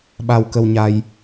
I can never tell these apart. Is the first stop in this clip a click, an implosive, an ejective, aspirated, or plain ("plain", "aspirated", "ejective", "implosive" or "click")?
implosive